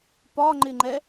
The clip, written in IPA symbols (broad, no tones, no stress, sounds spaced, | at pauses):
p ɒ ŋ͡ǃ ɪ ŋ͡ǃ ɛ